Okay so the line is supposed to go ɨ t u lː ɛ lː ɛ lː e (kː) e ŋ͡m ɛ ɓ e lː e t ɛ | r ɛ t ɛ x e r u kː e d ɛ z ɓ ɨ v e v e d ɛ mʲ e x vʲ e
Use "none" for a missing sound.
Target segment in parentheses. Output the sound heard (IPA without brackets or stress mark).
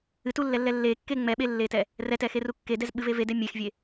kː